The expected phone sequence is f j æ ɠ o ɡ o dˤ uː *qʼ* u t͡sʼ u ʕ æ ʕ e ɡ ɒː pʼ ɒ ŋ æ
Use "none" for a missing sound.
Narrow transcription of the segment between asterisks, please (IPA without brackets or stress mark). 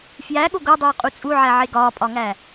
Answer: qʼ